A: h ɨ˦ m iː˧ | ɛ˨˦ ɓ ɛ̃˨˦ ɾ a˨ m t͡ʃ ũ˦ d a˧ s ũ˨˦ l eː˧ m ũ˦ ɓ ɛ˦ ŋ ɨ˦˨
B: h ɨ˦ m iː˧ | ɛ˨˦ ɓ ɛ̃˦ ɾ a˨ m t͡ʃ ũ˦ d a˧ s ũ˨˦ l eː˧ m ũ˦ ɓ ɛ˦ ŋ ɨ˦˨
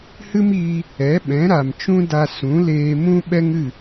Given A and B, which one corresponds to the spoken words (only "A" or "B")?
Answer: A